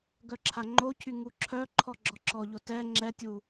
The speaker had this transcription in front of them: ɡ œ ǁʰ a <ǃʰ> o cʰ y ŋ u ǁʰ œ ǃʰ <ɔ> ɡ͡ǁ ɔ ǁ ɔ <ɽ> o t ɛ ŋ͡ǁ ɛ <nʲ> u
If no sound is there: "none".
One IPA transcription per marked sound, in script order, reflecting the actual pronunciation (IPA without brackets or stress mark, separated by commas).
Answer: ŋ͡ǃ, ɔ, ʎ, tʲ